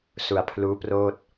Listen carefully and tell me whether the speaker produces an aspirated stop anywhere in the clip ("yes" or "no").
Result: yes